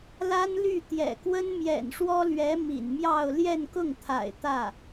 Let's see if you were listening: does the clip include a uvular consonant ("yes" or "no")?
no